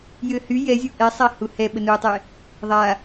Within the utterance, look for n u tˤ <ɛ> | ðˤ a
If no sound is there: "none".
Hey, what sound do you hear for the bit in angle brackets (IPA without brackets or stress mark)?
ɛ